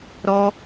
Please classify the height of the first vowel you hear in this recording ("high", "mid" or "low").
mid